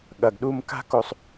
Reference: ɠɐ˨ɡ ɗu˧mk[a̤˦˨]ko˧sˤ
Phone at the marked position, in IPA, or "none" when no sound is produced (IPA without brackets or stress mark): a̤˦